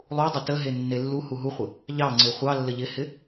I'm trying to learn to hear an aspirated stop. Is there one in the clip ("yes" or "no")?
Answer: no